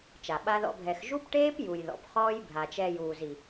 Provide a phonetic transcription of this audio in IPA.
t͡ʃ a˨ ɓ a˦ ð ɔ̰˦ bʱ ɛ˧ x ʒ u˦ p ʈ eː˦ p j u˨ j ð ɔ̰˨ p χ ɔː˦ j bʱ a˨ t͡ʃ ɛ˧ j uː˨ z i˨

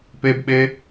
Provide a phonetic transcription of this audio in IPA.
p e b ɓ e

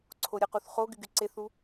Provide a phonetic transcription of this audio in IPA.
ǀʰ o ɾʲ ə q u θ χ o ɡ y ɡ y ǀ e θ u

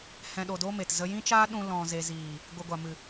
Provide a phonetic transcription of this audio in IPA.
h ɛ̃˨ ɗ o˨ d o˧ m e˨ t z ə˧ j ĩ˦ t͡ʃ aː˦ ɗ ũ˧ l ɔ̃˨ z e˨ z iː˨ | ɡʷ ɨ˨ ɡʷ a˨ m ɨ˨

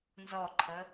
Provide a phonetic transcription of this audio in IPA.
n z ɔ ǃʰ ə

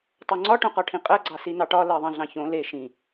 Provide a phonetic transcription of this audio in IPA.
tˤ o ŋ͡ǀ ɒ ʈ õ q ɒ ʈʰ ĩ qʼ ɜ ɡ͡ǀ ɑ s i n ɑ ʈ ɒ l ɜ ðˤ ɑ̃ ɮ ɑ̃ ç õ l e ʃ ĩ

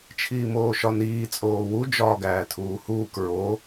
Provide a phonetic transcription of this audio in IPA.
t͡ʃʰ iː m oː ʃ ɒ n iː t͡sʼ oː w u d͡ʒ ɒː ɡ æː tʰ uː h uː k ɹ o

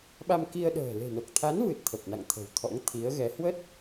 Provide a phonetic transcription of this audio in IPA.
ɓ a˧ m k i˧ ə̯ ɗ ə̤ː˨˩ l e̤˨˩ n o˨˩ k̚ t̪ʰ a˨˦ n v ɨ˨˩ t̚ t̪ʰ ə˨˩ p̚ n a̰˧˨ ŋ t̪ʰ ə̤˨˩ w t̪ʰ ɔ̰˧˥ ŋ t̪ʰ i˨˦ ə̯ ɣ ɛ˨˦ h w ə˦˥ t̚

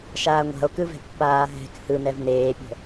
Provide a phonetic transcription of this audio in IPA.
ʃ aː ŋʷ a̤ o̯ k ɯ v ɛ̤ pː aː ɦ ɛ̤ k h ɯ n ɛ v n eː pʲ ə̤

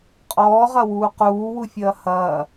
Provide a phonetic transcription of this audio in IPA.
qʼ ɔː ʁ ɐ w uː q uː w u fʲ ɐː h ɐː

